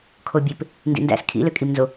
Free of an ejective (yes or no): no